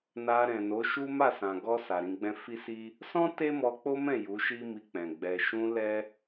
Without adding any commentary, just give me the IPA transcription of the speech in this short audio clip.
na˧ɾɛ̃˨no˨˦ʃu˦ ma˦˨sã˨ɡɔ˧ sa˨ɾĩ˧ɡ͡bɛ̃˦ fi˦si˦ | sɔ̃˦ te˦mɔ˧k͡po˦mɛ̃˦˨ ju˨˦ʃi˦mi˧k͡pɛ̃˨ ɡ͡bɛ˨ʃũ˧ lɛ˦

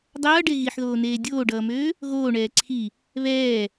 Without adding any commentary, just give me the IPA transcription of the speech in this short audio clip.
dˤʌːɖe ɣiħðoːneː dʲoːɖʌːmøː | ɣoːɳɛː ǀʰi | βɛː

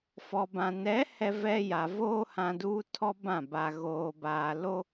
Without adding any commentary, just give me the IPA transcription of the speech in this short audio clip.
fɔ˨bã˨ nɛ˨˦hɛ˨ vɛ˦ja˨ voː˦hã˨ duː˦ tʰɔ˦bã˦˨ ba˨ ɣoː˨baː˨ lo˦

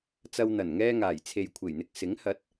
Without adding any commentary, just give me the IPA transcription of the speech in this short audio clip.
t͡sɐ˧w n̪ɐ˨˩nŋɛː˧ŋaː˨˩j t͡sʰe˨jkʷʰe˨˩j n̪ɪ˨k̚ sɪ˨˥ŋ hɐ˨˥t̚

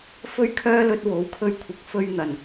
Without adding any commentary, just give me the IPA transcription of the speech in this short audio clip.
fɵ˥ɥkʰœː˥lɵ˧t̚ wo˨˥wkʰɵ˥ɥkʷʰɪ˧k̚fɵ˥ɥ n̪ɐ˨n

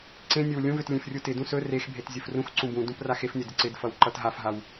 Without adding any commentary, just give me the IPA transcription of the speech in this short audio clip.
ǀẽnʲɵw lʲũvøt lʲẽfrʲutɪdũ sɵ rexbʱet zʲɵfrũxǀũ bũdũp raxefnʲɵ dɪǀɪdfʌw ǃʌtɦafɦaw

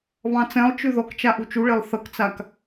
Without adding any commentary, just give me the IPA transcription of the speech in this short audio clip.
βɑ̃t͡sɛ̃lˠt͡ʃʉ ðɔkt͡ʃa ʔut͡ʃuɭelˠ θʌkt͡sak

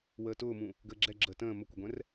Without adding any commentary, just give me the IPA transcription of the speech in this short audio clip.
wəːtʊːmũ | ɡəːɡ͡ǁɛ ɡ͡ǁəːtə̃ː məkʷəɡʷɛ̃r

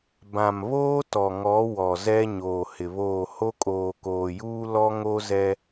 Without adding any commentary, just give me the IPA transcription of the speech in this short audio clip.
bã˨mβoː˦tɔ˨ŋɔ˨˦ wɔ˨zɛ˦ ɲoː˨hɪ˨βoː˦˨ ho˦kʼoː˨koː˨juː˦ lɔ˦ŋo˦zɛ˦

